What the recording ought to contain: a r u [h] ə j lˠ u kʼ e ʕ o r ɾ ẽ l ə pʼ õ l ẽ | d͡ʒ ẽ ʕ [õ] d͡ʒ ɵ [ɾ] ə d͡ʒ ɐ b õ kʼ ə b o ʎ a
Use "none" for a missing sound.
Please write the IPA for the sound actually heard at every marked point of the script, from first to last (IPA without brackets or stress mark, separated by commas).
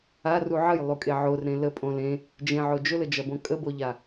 ʕ, o, l